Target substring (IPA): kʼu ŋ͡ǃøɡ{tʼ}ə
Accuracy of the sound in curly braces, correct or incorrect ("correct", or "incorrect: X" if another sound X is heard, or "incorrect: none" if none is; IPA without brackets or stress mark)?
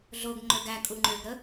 incorrect: ɾ